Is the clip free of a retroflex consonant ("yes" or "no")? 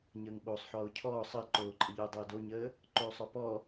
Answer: yes